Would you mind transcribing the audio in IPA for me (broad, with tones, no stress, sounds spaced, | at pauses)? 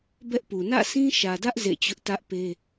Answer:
b ɛ˦ ʔ p u˨ n ä̰˦˨ sʰ ĩ˦ ʃ ä˨ d ä˦ ʔ z ḛ˦˨ t͡ɕ ʊ˦ ʔ t ä˦ ʔ p e˦